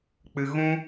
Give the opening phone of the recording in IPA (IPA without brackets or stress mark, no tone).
k͡p